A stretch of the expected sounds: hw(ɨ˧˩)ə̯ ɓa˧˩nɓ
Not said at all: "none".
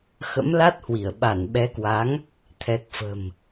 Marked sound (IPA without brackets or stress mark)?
i˧˩